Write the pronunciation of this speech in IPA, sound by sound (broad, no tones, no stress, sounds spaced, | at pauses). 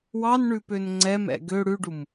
w ɑ n ɳ ʉ p ø n ŋ͡ǀ ɛ m ɛ̰ ɡ ø ɽ ʉ ɖ u m